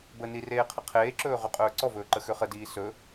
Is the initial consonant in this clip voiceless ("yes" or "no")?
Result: no